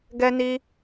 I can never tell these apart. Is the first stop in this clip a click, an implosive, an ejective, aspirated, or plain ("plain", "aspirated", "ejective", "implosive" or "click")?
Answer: plain